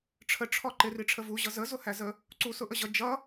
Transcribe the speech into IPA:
ʈ͡ʂʰ ə ʈ͡ʂʰ ɔ ǃ ɪ r i ʈ͡ʂʰ ə v u ʑ ʌ z ə z ʊ h æ z ə | ǀ u s ʊ ʔ ə ʑ ʌ d͡ʒ ʌ

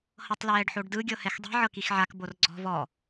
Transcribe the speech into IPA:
h ɤ tˤ l ɛː ɖ ħ o ɖ d ɯ ɡʲ ɤ h ɛ x dˤ ɛ̤ ʕ ɤ k i x ʕ a k b o r ɡ͡ǀ ɔ̤ v ɔ

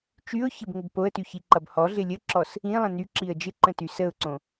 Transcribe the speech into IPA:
t͡ʃ y ʊ̯ ç ɪ b ŋ ə b p o ə̯ t y ç i ǃ ʌ b h ɔ ɮ ɪ lʲ ə ǁ ɔ s | ĩ lˠ ə̃ n y ǁ i ə̯ d͡ʒ ɪ ǃ ə̃ t y s ə ʊ̯ ǀ õ

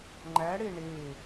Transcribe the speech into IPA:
ŋ͡ǃ æ ɽ e ɳ e

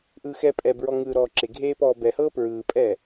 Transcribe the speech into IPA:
ʔ ɯː x ɛː pʼ ɛ b ɹ ɔ ŋ ɯː ɾ ɔː ǁ e ɡʱ eː p ɔː b ɛ h ɤː p ɹ ɯː pʼ ɛː

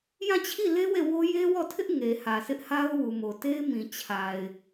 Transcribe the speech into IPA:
j ã˦˨ t͡ɕʰ i˦˨ l e˦ w e˦˨ w o˦ j e˦ w ɔ˦˨ tʰ ɪ˦ ʔ ŋ e˨ h ä˨ s ɪ˦ ʔ h a˦ ʊ̯ w u˨ m o˨ t e˦ ɪ̯ m ĩ˨ t͡ɕʰ a˨ ɪ̯

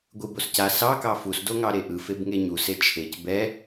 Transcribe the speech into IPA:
ɡʷ ɯ b o s c a s ɑ k ɑ f u s d o ŋ ɑ ɾ e ʔ ɯ f e b ŋ e ɲ u s e t͡ʃʰ e c b ɛ

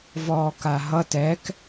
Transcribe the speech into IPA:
v ɔː k a ɦ ʌ t ɛ k

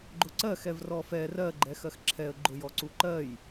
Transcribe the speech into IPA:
ɡ͡ǃ ʊ ǀ ɜ x ɛ v r ɔ f ɛ r ɜ ɡ͡ǃ ɛ x ɜ x ǁʰ ɛ ə̯ ɡ͡ǃ ʊ j ɔ ǀ u ǃ ɜ j

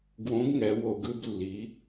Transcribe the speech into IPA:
ɡ w õ˩˥ ɡ ŋ ɛ˩˧ w o˧˩˧ ɡ ɯ˥˨ b lː i˩˧

